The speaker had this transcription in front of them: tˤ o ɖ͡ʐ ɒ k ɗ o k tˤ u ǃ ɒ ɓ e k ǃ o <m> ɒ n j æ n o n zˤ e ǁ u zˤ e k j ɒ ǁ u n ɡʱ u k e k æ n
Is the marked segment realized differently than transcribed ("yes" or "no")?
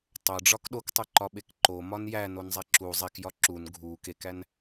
no